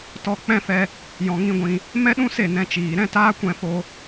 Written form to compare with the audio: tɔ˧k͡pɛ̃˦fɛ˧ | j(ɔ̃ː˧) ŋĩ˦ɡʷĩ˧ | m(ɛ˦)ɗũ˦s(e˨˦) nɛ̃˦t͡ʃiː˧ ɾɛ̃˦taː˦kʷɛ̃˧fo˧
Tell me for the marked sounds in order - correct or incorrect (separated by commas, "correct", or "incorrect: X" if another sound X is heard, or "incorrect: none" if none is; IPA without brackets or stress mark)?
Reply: incorrect: ɔ̃˧, correct, incorrect: e˦˨